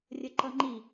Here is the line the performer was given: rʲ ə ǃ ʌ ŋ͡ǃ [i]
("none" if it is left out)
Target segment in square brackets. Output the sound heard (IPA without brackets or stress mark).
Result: i